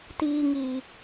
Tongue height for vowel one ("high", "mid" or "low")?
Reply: high